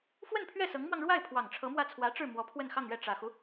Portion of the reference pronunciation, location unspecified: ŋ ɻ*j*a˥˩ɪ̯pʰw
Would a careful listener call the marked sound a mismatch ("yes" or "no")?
yes